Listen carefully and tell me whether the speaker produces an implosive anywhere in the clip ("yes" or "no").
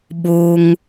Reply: yes